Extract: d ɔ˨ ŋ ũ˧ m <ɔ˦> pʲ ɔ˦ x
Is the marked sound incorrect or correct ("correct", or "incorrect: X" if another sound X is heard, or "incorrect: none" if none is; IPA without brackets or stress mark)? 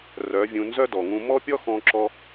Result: correct